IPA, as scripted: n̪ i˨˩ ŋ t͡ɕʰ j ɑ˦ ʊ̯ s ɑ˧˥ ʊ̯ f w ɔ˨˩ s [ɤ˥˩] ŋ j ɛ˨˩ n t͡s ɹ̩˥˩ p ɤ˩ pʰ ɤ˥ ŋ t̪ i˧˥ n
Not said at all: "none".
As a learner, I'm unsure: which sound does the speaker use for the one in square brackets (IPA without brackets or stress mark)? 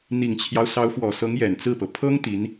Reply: ɤ˧˥